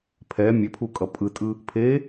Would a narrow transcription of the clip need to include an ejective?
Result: yes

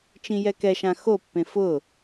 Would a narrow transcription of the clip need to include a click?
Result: no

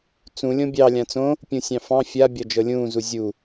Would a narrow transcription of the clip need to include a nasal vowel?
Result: yes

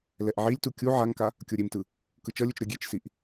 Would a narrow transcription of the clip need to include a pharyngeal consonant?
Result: yes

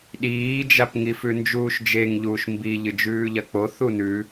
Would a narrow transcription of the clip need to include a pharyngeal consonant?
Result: no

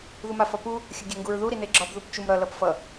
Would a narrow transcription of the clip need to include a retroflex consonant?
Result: no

